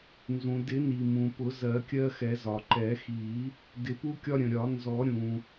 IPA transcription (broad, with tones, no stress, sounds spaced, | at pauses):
n z ũ˩ d ɪ˨˩˦ n i˩ m ũ˩ p ʊ˨˩˦ z ɜ˨˩˦ kʲ ɜ˦ x ɛ˨˩˦ z ɒ˩ ǃ ɛ˨˩˦ x i˨˩˦ | d ɪ˨˩˦ p u˦ kʲ ɒ˦ ɾʲ ə̃˩ ɾʲ ɒ˨˩˦ n z ɔ˨˩˦ ɾʲ ũ˩